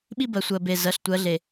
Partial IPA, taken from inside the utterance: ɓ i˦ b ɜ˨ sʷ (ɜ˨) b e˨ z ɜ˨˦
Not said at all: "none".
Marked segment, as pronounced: ɜ˨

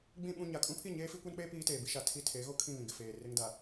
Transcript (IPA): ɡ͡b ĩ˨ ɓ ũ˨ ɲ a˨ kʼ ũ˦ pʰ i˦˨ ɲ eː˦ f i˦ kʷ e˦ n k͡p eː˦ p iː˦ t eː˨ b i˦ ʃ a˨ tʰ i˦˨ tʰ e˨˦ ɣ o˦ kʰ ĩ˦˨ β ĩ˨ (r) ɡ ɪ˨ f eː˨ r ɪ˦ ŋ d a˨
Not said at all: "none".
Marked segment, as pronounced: none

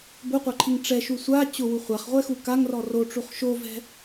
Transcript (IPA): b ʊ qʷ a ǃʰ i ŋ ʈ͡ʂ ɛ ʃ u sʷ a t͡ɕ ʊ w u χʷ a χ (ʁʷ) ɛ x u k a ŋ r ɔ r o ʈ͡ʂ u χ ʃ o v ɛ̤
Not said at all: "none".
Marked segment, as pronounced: ʁʷ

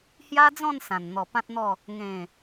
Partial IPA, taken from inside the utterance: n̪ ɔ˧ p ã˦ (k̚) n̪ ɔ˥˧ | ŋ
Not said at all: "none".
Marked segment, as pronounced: t̚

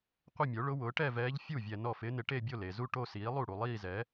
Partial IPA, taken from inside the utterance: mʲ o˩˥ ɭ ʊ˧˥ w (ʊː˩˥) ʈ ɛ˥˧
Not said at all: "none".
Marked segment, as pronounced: ʊː˩˥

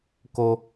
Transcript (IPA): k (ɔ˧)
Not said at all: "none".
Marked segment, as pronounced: o˧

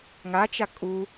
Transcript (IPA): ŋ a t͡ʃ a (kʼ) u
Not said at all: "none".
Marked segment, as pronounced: kʼ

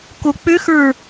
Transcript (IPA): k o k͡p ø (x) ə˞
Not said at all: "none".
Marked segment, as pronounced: x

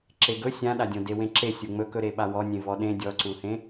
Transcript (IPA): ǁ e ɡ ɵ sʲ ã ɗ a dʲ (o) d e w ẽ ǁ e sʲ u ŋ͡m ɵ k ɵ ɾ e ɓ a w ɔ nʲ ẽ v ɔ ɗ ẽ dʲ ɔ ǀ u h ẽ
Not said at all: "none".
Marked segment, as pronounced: õ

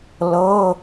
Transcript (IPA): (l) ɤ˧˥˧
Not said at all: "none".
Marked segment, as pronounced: l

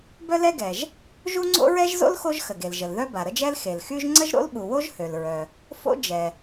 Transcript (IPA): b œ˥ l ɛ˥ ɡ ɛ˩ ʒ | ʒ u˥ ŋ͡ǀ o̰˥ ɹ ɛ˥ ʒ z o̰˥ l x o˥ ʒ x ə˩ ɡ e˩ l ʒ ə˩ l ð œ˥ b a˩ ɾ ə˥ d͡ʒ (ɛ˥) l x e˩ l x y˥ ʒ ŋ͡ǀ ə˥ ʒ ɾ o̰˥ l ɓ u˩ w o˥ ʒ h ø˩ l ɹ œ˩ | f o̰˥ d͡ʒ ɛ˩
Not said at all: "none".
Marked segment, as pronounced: ɛ˥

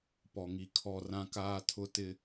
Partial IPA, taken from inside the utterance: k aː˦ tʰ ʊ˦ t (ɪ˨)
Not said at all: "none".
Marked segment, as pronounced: ɪ˦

